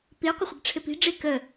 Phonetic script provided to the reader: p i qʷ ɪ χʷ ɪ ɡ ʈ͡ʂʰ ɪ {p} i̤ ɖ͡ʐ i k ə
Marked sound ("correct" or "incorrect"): correct